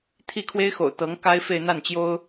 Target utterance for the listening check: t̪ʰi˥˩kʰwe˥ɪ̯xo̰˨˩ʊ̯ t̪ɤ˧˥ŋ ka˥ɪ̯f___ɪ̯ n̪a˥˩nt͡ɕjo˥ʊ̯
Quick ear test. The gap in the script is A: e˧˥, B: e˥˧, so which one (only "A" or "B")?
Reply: B